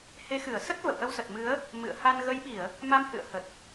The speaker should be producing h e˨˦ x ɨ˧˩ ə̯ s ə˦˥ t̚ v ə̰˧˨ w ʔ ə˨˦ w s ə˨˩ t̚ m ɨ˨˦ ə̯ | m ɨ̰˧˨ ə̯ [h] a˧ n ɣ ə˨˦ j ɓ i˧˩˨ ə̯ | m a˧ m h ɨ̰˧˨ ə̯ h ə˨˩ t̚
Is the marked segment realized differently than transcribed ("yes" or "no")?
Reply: no